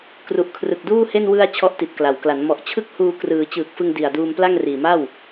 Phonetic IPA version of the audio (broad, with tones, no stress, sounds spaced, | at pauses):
k r u˨˩ ʔ kʰ r ɯ˨˩ k̚ d uː˥˩ h e˥˩ n w ɯ˧ a̯ t͡ɕʰ ɔ˦˥ ʔ t i˨˩ t̚ k l a˩˦ w k l a˩˦ n m ɔ˨˩ ʔ t͡ɕʰ ɯ˥˩ k̚ h uː˧ k r ɯː˩˦ t͡ɕ ɯː˨˩ k̚ f ɯ˧ ŋ d i˨˩ a̯ d uː˧ m p l a˥˩ ŋ r iː˨˩ m a˥˩ w